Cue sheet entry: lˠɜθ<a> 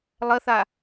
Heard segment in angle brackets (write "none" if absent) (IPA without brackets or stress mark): a